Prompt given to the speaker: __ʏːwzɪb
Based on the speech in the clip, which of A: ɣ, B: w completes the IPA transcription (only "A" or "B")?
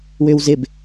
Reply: B